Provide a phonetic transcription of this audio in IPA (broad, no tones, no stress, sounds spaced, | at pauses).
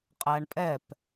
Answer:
qʼ æ ɳ pʼ ɛ p